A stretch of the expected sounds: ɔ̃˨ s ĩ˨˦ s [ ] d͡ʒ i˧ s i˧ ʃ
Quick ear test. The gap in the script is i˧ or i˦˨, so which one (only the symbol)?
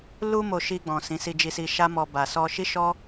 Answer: i˧